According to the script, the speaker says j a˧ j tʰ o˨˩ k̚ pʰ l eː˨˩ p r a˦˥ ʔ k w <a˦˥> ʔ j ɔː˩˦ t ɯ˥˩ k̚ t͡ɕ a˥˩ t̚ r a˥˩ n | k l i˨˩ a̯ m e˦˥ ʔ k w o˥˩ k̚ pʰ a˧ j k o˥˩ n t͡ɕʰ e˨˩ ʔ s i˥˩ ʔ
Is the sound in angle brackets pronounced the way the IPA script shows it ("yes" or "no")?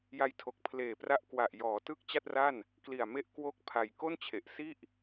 no